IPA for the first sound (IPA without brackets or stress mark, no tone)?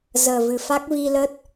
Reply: z